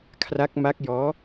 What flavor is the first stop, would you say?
aspirated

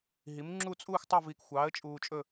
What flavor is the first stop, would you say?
click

